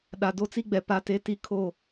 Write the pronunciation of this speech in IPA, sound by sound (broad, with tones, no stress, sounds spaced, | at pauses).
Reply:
ɗ a˨ d o˦ t͡s i˦ ɡ͡b ɛ˨ p a˦ t e˦ t i˦ kʰ o˦˨